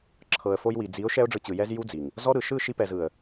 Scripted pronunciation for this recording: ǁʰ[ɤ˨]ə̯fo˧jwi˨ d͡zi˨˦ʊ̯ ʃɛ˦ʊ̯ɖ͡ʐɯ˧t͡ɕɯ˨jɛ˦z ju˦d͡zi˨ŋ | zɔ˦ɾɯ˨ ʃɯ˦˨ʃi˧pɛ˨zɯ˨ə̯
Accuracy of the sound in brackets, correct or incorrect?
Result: correct